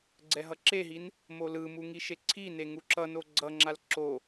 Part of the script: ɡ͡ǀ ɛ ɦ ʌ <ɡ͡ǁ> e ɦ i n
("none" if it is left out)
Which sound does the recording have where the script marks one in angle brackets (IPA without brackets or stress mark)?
ǁ